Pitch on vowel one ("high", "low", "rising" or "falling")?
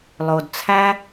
low